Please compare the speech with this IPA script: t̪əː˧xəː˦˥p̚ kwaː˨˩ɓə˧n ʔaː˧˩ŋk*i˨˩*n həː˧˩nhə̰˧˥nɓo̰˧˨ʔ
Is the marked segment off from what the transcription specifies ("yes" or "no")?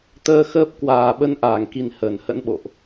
no